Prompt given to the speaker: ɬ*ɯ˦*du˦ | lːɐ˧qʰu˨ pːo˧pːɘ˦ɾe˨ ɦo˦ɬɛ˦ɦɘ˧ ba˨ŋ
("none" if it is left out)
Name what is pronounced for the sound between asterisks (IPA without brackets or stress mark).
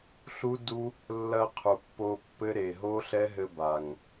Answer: u˦